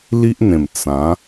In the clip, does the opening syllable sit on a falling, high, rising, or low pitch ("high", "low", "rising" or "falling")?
high